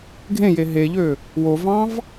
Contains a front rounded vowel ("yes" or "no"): yes